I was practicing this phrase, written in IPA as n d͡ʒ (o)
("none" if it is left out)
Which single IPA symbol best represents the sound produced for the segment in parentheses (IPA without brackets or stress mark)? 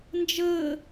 ɤ